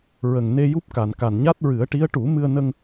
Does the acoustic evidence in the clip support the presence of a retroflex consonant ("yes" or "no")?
yes